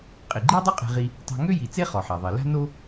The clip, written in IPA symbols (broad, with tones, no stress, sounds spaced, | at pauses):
qʼ i˩ ɡ͡ǃ i˥ dˤ o˥ qʼ e̤˧ ʁ i˧ | tˤ a̤˧ ŋ ø˥ j i˩ t͡s e˥ χ ɔ˩ ħ a˩ ðˤ i˩ l a̤˥ n o˥